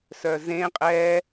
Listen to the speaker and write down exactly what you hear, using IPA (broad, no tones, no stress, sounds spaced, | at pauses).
s œ z ẽ qʼ ɛ